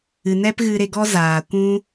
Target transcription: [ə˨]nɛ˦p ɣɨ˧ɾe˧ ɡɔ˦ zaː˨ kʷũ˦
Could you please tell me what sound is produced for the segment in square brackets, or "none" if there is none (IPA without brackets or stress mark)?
ɨ˨